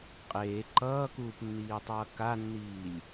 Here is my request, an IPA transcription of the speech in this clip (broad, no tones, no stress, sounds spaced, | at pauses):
qʼ eː ǃ ʌː k uː p nː iː tˤ ʌː k a nː iː lʲ